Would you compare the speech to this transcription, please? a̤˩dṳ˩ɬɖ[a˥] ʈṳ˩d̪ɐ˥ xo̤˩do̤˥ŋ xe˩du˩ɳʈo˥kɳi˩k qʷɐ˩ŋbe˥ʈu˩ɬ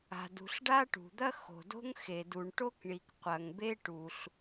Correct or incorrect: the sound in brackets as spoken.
correct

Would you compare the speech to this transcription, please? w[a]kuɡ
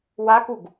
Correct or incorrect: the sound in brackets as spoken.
correct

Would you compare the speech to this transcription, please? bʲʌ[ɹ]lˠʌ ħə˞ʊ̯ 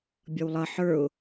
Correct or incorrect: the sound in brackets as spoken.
incorrect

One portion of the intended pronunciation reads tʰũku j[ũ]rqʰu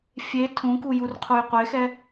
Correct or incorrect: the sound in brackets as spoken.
incorrect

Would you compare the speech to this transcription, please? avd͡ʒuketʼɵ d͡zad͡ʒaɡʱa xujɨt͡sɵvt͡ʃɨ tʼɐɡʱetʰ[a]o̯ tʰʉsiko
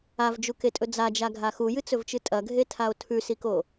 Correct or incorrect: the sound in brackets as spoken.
correct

